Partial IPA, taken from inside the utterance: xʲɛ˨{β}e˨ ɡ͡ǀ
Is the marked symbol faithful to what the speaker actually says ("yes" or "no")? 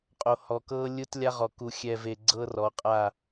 no